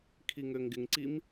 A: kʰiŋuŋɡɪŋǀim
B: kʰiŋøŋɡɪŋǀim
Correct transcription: B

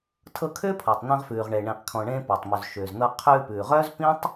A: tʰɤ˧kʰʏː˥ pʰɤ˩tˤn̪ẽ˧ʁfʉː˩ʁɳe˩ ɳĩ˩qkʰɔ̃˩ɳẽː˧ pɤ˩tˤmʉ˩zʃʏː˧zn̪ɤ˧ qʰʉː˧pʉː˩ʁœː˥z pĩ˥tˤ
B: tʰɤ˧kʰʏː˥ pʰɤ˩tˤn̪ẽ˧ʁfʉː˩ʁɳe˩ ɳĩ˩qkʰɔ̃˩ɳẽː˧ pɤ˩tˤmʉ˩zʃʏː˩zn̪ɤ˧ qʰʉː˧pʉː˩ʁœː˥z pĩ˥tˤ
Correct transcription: B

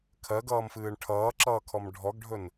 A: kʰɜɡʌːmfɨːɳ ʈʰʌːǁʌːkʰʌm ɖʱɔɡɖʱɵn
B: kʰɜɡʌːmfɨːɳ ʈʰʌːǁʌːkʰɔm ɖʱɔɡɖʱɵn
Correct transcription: B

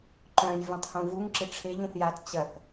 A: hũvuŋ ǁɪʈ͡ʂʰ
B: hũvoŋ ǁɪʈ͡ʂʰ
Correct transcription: A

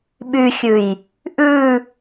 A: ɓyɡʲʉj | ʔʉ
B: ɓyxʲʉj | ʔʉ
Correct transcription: B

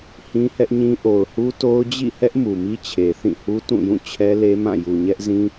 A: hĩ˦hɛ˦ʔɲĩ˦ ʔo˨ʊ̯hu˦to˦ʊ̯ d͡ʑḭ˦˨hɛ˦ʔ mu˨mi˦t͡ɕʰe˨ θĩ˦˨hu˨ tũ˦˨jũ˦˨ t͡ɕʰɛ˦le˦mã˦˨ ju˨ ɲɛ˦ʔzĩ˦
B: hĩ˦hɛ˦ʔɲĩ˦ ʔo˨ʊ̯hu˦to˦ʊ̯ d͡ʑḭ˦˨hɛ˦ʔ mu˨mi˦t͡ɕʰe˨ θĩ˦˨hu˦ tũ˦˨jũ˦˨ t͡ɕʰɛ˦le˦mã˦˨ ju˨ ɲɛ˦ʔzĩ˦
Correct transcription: B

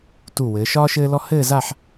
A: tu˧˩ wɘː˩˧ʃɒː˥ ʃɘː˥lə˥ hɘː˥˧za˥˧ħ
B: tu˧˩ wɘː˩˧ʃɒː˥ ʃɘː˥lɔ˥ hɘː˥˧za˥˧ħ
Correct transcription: B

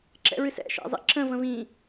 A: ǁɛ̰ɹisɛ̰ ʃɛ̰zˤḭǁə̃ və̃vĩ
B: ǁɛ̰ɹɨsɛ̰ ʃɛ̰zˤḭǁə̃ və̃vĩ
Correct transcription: B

